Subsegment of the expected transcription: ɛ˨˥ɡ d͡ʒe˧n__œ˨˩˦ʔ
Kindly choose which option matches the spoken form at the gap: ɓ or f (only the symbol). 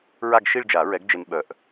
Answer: ɓ